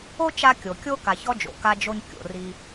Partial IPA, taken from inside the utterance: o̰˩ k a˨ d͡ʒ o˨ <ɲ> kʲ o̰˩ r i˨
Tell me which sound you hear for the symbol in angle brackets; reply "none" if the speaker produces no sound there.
ɲ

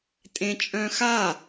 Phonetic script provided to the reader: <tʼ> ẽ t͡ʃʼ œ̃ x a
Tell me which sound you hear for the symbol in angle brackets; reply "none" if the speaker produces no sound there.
tʼ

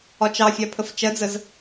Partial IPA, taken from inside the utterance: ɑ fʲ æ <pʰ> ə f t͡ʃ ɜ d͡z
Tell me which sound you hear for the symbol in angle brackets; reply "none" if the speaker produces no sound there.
pʰ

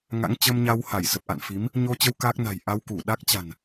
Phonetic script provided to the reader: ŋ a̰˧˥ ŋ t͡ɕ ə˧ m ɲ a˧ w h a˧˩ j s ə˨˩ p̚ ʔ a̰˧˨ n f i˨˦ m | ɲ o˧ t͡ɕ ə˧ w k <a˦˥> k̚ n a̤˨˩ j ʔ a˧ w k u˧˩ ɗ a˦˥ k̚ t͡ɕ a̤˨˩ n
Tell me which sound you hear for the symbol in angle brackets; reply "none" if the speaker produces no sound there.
aː˦˥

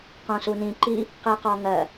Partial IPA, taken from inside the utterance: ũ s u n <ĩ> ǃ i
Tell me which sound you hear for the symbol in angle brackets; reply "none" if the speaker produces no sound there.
ĩ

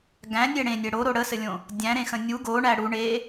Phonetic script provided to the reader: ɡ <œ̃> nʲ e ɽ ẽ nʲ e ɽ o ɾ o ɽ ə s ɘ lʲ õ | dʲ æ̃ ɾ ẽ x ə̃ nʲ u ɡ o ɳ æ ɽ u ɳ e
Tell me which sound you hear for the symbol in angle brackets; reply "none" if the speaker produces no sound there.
æ̃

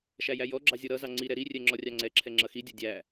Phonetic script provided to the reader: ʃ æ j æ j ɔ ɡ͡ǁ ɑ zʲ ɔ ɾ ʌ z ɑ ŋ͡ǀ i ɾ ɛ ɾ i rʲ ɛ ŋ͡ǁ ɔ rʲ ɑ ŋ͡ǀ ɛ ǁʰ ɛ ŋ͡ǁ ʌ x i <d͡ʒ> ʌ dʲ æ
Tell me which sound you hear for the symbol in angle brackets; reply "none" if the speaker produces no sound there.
dʲ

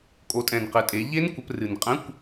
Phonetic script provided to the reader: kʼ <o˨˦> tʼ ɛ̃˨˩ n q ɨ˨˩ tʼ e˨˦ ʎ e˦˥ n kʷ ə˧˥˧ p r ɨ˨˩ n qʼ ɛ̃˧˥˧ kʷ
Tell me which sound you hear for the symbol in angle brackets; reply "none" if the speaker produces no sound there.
o˨˦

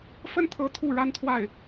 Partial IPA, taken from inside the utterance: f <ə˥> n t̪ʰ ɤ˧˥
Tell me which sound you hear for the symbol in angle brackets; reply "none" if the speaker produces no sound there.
ə˥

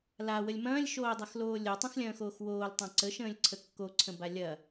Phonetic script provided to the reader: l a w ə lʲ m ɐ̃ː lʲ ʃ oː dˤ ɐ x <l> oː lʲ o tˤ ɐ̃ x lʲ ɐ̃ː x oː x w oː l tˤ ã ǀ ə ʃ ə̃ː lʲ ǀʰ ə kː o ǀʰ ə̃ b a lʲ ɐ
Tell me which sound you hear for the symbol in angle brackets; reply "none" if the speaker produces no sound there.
l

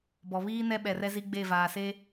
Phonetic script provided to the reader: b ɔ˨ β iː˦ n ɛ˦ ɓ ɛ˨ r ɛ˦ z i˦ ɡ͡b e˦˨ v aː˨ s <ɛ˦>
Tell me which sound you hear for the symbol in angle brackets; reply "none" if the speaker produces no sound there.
e˦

